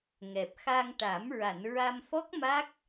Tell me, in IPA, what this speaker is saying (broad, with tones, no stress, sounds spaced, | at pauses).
ŋ ɛ˨˩ p̚ x a˧ ŋ ʈ a˨˩˦ m ɹ a˨˩˨ n ɹ a˧ m f ɔ˦˥ k̚ m a˦˥ k̚